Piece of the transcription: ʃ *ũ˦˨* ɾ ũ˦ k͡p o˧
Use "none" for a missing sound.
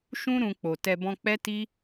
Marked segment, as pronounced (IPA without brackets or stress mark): ũ˦